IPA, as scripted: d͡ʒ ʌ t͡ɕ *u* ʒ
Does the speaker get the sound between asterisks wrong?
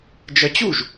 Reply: no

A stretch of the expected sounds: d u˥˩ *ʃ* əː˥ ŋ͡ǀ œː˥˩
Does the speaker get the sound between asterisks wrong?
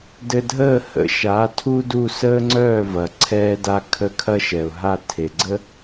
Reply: yes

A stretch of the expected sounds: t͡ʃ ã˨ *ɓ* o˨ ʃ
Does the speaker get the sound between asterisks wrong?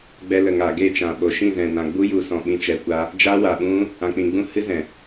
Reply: no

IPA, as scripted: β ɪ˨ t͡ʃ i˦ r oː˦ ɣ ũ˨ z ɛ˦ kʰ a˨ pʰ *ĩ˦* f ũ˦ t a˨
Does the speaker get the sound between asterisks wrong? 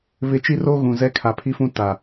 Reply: yes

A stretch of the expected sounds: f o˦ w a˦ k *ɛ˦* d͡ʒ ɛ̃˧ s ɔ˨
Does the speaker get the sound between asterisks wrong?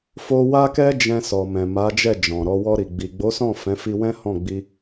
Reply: no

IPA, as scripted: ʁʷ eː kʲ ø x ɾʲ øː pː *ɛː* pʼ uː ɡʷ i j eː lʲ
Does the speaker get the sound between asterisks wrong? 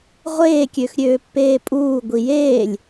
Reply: yes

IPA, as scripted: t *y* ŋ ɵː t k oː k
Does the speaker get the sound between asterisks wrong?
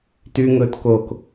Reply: no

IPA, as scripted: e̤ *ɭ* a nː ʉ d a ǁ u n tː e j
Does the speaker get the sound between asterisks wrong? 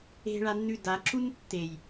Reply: no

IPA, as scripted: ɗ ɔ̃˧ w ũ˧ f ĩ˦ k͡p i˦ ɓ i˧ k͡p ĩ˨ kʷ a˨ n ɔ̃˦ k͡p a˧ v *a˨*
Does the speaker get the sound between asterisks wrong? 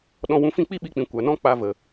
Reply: yes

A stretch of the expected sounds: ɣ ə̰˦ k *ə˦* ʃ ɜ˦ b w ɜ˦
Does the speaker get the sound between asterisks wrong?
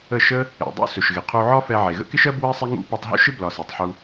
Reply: yes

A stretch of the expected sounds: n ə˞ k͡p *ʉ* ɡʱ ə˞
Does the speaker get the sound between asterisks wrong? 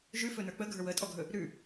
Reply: yes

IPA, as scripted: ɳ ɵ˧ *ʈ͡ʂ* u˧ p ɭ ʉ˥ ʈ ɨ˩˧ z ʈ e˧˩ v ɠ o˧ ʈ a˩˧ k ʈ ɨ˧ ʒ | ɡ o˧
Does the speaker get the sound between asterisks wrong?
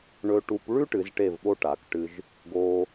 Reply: yes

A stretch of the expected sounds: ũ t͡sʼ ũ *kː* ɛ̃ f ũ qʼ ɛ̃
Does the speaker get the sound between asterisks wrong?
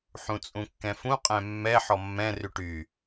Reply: no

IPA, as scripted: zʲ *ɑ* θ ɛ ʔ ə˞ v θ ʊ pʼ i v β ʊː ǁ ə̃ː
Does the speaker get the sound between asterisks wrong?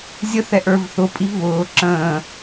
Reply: yes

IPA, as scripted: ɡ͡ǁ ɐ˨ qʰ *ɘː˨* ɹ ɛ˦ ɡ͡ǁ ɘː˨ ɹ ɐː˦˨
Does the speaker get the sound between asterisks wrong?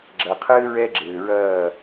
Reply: yes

